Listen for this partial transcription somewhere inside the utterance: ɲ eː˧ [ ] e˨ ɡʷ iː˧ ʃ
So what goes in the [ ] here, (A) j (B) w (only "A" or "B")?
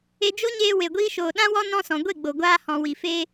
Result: B